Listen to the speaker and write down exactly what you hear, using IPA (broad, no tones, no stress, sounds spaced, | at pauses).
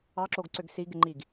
ɑ ǁ o ɡ ǀ ʏ ɡ s i ɡ ɪ ŋ͡ǃ i ɡ